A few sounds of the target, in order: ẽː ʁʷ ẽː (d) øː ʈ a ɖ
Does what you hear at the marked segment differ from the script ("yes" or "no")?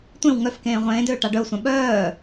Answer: no